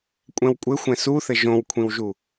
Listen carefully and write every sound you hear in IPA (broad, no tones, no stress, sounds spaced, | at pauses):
kʷʼ ɛ̃ w kʷʼ ɘ xʷ ɛ̃ s u θ ɘ ʒ õ w kʷʰ ĩ w ʒ u